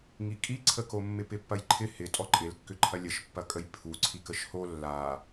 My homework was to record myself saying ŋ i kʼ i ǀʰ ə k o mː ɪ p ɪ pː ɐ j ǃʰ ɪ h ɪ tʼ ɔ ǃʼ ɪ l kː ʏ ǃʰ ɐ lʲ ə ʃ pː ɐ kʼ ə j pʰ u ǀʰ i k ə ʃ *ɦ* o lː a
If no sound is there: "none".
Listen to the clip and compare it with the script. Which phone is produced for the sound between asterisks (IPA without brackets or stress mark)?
h